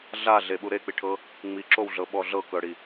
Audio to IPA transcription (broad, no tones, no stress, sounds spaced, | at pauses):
ɮ a ɮ e ɓ u ɾ e k͡p i ʈʰ ɤ | ŋ͡m i ǁ o w ɮ ɤ ɓ ɔ ɮ ɤ k ɤ ɽ i